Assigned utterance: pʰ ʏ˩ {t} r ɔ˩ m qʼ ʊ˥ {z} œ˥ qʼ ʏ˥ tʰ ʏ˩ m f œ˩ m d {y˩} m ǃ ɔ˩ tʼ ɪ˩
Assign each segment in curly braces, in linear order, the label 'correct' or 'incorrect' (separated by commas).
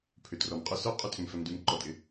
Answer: correct, incorrect, correct